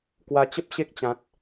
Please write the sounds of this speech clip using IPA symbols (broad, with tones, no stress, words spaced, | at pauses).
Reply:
kwa˧t͡ɕə˦p̚ ɕe˦k̚t͡ɕã˨t̚